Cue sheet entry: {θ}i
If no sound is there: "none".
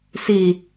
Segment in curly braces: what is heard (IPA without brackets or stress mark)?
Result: s